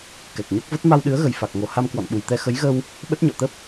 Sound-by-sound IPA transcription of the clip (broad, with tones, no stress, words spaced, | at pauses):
kɛ˨˩k̚ɲo˦˥k̚və˦˥t̚ ma˧wɗɨ˨˦ə̯ɣə˨˩j fa˨˩k̚ŋo˨˩ ha˧m kwɔ̰˧˨nɓu˨˩jt̪ɛ˧ xə˨˦jɣə˧w | ɓə˦˥t̚ɲɔ̰˧˨t̪ə˦˥p̚